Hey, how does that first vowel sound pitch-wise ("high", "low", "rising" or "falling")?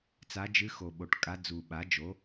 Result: rising